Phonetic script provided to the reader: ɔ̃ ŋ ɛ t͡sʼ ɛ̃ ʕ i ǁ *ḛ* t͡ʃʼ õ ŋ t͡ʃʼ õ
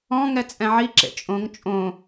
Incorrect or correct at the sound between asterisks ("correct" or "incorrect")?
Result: correct